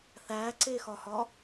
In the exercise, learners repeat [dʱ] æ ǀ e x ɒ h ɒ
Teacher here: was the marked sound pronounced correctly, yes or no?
no